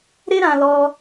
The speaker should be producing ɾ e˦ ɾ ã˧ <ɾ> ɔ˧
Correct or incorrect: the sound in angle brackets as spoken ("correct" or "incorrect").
incorrect